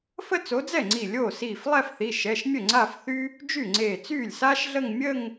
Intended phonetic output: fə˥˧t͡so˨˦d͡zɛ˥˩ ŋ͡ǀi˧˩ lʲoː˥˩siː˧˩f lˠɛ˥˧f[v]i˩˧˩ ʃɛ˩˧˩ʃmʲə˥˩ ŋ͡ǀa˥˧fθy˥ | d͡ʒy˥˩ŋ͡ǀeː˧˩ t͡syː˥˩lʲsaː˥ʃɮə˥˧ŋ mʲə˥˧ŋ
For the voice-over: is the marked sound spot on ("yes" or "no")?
no